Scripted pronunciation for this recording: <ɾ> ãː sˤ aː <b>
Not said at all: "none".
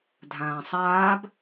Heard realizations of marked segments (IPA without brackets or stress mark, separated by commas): dʱ, b